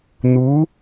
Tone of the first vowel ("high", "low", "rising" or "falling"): rising